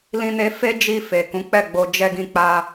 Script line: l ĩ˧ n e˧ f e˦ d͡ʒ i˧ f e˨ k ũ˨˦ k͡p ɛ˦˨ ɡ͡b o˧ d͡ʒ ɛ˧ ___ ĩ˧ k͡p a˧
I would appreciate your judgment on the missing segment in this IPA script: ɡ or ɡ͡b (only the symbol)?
ɡ